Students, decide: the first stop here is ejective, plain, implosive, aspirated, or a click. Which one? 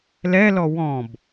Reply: plain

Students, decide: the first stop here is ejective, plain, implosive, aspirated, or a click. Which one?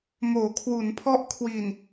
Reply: aspirated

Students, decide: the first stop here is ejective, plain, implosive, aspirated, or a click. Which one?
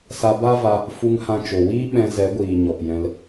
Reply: plain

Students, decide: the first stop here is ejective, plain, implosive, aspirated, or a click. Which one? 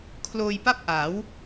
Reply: aspirated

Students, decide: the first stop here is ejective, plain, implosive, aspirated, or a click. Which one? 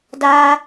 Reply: plain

